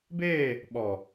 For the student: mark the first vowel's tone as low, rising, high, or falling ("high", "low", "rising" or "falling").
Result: falling